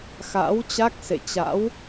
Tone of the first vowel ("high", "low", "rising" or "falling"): rising